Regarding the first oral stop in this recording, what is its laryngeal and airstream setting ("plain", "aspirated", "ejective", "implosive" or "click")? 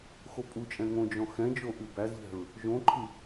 ejective